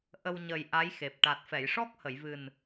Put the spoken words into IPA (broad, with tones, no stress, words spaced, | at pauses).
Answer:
ʔə˧w ɲə˨˩j ʔa˧˥jxe˨˩p̚ ʈa˨˩t̚fɛ˨˩˨jʂɔ˦˥k̚ hə˨˩˨jvɨ˨˩n